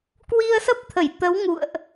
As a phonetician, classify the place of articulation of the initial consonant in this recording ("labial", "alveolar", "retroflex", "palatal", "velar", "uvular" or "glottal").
velar